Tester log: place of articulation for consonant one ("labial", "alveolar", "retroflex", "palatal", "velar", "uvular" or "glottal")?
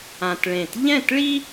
alveolar